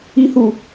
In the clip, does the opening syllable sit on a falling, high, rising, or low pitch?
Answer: high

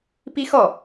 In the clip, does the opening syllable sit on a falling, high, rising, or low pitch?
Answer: high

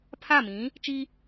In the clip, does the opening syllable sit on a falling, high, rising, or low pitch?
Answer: falling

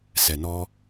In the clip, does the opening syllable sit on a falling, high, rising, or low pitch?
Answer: low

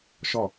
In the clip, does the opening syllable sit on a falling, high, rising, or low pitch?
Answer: falling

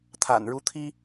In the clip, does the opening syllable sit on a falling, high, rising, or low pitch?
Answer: low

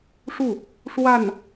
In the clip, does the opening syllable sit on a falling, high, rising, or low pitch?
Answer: falling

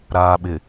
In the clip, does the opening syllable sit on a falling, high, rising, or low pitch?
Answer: low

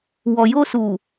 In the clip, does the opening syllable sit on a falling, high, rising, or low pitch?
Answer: low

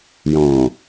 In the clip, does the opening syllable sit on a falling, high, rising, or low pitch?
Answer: low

